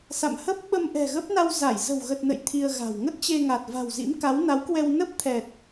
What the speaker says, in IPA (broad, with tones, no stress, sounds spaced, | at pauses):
s a̰˧˨ m h ə˦˥ p̚ ɓ ə˧ m ʔ ɛ̤˨˩ ɣ ə˦˥ p̚ n a˧ w z a˧˩ j z ə̤˨˩ w ɣ ə˨˩ t̚ n ə̰˧˨ j t̪ʰ i˧ ə̯ ɣ a̤˨˩ w ŋ ə˦˥ t̚ t͡ɕ e˧ ŋ a˨˩ t̚ v a̤˨˩ w z ḭ˧˥ m k a˨˦ w n a˨˦ w k w ɛ˧ w n ə˦˥ p̚ t̪ʰ ɛ˨˩ t̚